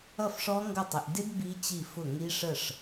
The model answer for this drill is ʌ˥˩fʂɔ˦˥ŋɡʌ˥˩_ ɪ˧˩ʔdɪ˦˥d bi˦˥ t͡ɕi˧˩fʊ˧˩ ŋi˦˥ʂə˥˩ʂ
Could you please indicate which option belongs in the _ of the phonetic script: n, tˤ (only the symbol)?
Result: tˤ